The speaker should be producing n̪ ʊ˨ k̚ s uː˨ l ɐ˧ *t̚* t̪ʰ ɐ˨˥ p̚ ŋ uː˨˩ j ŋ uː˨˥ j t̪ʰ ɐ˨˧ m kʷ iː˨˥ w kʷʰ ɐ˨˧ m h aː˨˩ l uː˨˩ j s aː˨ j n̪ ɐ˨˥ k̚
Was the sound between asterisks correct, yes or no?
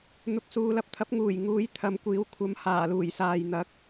no